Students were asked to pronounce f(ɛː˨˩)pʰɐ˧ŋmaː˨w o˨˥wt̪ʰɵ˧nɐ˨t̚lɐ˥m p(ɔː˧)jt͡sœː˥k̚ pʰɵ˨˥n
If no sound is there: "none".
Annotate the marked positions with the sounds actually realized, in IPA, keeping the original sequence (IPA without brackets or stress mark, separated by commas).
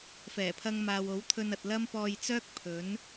ɛː˨˩, ɔː˧